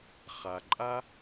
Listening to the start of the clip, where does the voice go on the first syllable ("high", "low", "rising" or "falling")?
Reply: low